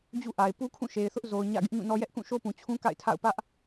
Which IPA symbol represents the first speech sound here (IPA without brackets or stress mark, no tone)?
d͡ʑ